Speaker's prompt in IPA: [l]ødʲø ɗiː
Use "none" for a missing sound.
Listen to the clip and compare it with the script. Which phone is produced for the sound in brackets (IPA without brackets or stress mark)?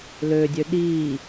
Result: l